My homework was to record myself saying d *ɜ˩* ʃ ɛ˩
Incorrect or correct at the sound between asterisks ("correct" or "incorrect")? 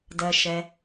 correct